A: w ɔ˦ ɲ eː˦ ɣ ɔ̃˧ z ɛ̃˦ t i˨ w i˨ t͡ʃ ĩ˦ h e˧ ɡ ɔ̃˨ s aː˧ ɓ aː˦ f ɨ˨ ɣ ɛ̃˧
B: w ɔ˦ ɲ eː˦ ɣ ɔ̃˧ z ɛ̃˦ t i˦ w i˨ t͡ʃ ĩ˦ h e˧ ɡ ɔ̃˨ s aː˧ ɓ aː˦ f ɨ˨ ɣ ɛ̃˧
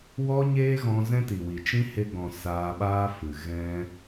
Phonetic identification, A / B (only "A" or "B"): A